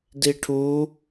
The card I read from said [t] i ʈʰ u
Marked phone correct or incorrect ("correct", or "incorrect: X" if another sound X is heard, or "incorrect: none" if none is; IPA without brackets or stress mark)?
incorrect: d